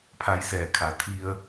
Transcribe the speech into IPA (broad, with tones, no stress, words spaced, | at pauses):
pʰa˧jsɛː˧˩kʰa˧˩ t̪ʰi˧ə̯